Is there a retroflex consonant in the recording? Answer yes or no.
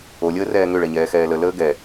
yes